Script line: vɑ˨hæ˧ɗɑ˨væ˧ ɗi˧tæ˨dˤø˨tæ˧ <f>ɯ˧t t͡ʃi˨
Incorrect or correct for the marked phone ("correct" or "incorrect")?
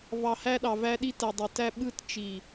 incorrect